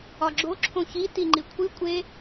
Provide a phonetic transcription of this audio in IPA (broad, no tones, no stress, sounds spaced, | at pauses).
ɒ ɡ͡ǁ o ǁʰ õ ç i t i ŋ͡ǃ i kʷʰ i kʷʼ e